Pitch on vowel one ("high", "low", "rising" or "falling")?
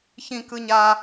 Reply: high